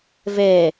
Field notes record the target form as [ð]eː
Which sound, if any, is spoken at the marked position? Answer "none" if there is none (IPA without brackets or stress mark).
v